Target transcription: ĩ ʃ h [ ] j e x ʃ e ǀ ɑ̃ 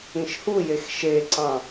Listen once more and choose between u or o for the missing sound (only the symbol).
u